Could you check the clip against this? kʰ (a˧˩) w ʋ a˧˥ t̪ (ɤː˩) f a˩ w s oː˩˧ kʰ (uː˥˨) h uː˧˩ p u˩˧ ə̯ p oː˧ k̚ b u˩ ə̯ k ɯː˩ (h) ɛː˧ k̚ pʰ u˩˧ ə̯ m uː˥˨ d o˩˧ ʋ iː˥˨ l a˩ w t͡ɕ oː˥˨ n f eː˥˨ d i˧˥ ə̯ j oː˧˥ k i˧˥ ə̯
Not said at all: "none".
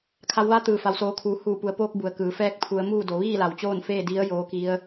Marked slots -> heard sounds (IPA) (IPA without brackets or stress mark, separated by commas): a˩˧, ɯː˩, uː˩, f